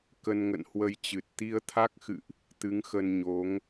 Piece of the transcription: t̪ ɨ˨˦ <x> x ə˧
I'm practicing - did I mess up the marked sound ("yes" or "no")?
yes